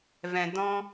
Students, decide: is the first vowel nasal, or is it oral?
nasal